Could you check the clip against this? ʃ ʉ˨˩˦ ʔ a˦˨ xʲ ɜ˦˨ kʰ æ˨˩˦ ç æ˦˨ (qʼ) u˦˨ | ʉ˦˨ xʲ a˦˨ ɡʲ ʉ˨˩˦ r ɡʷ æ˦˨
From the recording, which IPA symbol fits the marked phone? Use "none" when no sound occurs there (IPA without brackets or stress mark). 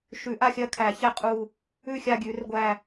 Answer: qʼ